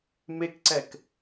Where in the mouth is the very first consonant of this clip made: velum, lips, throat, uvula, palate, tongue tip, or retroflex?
lips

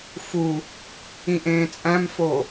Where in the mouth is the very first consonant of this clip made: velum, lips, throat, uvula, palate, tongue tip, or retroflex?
lips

